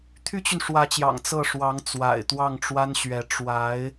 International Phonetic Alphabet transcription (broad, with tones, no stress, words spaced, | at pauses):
t̪ʰy˥t͡ɕy˨nʂwä˧˥t͡ɕjɑ̰˨˩ŋ t͡sɤ˥˩ʂwɑ˧˥ŋ t͡swa̰˨˩ɪ̯t̪wɑ˥˩ŋʈ͡ʂwa˥nɕɥɛ˧˥ ʈ͡ʂwa˧˥ɪ̯